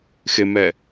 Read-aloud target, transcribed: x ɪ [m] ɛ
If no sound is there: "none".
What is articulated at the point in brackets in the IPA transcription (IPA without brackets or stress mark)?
m